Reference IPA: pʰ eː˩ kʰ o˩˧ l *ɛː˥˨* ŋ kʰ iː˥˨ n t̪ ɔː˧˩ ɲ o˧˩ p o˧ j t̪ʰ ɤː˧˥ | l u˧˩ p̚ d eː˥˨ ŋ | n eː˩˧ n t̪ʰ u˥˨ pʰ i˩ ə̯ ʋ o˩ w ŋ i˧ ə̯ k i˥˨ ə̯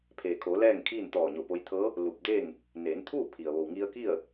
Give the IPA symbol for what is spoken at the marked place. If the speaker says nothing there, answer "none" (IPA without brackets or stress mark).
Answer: ɛː˥˨